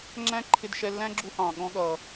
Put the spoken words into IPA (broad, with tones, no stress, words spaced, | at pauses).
ŋ͡ǁæ̃˥ǃʰɪ˧dʃɛ˧lːæ̃˥ ɡ͡ǁu˧hɑ̃˩ ɠɔ̃˧ɠʌ˩